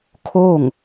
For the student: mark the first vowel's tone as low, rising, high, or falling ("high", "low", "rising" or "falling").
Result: falling